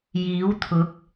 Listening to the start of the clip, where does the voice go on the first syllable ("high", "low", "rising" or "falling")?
rising